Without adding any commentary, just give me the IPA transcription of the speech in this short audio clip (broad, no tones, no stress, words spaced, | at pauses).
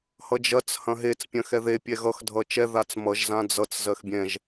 hʌd͡ʒɐt͡s hɐ̃ɦet͡s pʲɐ̃xɛðe pʲɛɣʌx dʱʌt͡ʃɛ ðat͡smʌʒ zãd͡zʌt͡s zɜxbʲɛ̃ʒ